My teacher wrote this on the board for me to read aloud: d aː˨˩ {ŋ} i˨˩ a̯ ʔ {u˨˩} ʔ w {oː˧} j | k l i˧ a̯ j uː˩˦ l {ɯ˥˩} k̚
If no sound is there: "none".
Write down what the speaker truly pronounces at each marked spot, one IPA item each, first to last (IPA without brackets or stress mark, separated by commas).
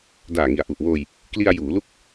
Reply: ŋ, u˨˩, oː˧, u˥˩